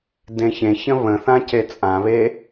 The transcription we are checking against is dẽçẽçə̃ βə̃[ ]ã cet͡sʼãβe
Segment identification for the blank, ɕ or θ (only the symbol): θ